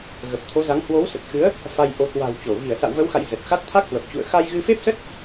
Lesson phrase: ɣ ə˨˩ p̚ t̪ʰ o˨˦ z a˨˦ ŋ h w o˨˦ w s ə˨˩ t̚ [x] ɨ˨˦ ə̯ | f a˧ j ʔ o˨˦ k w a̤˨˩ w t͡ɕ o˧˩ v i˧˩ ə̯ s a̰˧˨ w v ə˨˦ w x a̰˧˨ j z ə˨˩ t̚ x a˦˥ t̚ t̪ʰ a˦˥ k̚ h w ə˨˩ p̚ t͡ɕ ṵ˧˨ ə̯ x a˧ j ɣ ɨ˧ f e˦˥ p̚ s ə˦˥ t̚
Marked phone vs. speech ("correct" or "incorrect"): correct